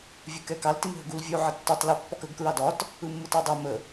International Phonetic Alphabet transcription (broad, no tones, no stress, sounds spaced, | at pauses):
vʲ ɯ k ɛ k ɑ l t i m ɦ ə ɡ u l vʲ u ʕ ə tː ʏ tˤ l i pː ɒ k ə ɡ k ɹ ɑ d ɒ t | ɯ mː ɯ t ɑ dˤ i m ə